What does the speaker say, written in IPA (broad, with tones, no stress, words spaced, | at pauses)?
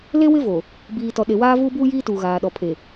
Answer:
le˦wɪ˦vo˨ | biː˨tɔ˨ɗe˨ waː˦vuː˦buː˦jiː˦ tuː˨ɣaː˨ ɗɔ˨pʰe˨